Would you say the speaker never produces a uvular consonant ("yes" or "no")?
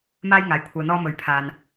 yes